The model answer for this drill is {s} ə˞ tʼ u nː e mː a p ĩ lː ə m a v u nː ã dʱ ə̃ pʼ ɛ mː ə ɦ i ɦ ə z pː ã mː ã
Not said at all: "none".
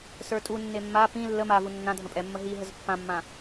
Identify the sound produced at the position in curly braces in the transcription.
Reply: s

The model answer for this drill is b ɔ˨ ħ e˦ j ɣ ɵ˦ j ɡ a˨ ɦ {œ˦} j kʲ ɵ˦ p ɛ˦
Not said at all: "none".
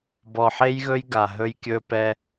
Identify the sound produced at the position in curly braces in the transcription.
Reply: ɵ˦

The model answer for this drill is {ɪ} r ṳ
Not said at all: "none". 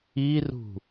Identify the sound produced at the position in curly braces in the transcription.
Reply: i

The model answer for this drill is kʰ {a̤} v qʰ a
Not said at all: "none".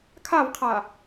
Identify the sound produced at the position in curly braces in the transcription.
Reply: a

